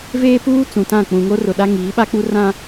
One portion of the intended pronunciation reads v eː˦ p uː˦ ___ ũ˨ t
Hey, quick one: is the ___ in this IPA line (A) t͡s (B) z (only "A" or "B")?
A